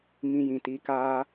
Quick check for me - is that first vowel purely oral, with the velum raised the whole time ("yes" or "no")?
no